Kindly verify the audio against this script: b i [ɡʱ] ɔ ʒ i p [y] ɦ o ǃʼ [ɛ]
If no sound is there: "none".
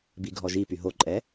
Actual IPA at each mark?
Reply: ɡʱ, y, ɛ

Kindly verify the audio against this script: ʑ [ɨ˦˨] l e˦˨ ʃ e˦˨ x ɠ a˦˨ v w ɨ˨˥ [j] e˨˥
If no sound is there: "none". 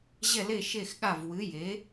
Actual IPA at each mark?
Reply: ɛ˦˨, j

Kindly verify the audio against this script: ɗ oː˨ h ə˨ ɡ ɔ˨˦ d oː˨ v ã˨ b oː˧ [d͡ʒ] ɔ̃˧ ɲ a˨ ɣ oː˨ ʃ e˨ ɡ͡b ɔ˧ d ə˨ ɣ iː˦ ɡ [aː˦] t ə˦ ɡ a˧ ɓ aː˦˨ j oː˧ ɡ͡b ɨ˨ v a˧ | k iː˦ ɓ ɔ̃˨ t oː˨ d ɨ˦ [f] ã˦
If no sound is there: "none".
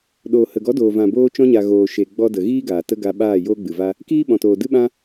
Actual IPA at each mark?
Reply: t͡ʃ, aː˨, ɓ

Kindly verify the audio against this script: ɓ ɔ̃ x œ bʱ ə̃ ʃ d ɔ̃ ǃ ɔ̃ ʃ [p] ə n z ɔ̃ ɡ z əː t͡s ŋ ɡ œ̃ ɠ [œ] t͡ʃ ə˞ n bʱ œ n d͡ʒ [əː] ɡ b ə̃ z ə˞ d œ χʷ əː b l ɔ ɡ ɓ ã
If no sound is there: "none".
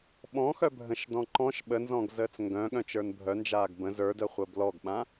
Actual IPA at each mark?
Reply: ɓ, œ̃, aː

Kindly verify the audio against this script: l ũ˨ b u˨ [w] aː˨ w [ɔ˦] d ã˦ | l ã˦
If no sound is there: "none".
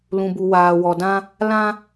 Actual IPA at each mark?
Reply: w, ɔ˨

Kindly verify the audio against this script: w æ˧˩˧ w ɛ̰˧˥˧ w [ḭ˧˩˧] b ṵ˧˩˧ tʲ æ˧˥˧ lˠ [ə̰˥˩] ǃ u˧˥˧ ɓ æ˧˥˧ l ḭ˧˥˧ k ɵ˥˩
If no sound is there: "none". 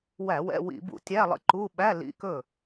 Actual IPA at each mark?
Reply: ḭ˧˩˧, ə̰˥˩

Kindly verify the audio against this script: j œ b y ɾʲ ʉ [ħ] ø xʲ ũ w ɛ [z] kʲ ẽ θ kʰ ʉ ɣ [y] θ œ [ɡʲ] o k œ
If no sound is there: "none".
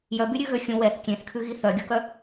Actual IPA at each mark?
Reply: ɣ, θ, i, ɡʲ

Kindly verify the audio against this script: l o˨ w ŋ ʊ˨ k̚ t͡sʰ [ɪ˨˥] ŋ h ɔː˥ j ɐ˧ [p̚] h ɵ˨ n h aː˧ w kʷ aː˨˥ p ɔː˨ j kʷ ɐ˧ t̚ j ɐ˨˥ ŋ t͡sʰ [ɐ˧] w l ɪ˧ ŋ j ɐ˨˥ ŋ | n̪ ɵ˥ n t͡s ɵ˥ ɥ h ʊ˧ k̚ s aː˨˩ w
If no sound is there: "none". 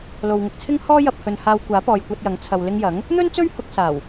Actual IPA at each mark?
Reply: ɪ˥, p̚, ɐ˨

